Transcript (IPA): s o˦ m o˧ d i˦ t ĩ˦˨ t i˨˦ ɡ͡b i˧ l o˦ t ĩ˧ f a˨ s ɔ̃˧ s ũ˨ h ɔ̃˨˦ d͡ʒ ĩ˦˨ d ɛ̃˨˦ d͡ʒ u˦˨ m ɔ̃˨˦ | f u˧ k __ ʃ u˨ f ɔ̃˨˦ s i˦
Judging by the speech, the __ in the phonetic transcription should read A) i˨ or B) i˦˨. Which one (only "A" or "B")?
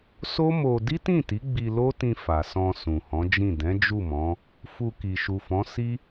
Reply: A